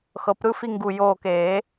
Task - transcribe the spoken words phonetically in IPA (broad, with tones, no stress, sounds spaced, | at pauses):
x ɤ˨˩˦ p ɾ ɯ˥˧ f i˥˧ ŋ ɡ u˧˩ j oː˧˩ k eː˨˩˦